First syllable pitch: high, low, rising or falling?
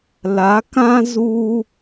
rising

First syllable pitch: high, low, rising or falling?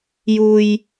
low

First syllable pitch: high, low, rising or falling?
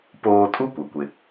high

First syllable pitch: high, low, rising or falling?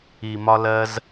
low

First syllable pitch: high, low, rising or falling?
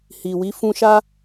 low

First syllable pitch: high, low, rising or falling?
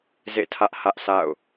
falling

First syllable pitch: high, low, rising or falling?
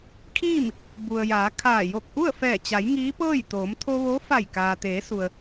falling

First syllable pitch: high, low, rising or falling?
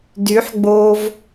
rising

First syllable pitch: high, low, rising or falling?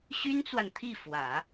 high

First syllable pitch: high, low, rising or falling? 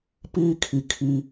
high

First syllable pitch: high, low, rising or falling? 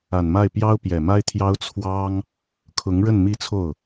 low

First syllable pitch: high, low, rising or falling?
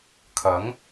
rising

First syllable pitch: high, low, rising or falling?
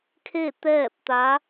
falling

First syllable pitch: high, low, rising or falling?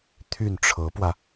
falling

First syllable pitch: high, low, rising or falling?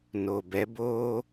low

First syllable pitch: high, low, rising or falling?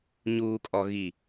low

